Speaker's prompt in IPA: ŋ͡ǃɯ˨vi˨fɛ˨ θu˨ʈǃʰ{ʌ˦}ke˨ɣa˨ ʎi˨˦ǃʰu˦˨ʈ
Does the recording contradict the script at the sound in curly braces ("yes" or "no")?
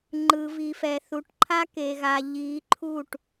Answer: yes